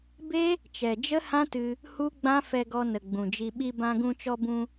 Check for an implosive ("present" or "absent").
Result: present